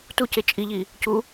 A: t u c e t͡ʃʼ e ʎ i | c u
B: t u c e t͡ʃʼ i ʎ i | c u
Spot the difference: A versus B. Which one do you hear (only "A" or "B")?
B